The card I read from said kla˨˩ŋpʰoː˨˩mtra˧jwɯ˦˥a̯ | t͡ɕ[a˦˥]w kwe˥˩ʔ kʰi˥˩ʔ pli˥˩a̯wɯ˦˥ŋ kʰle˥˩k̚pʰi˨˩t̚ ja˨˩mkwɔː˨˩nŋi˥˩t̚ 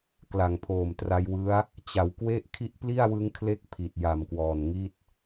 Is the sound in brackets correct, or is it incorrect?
incorrect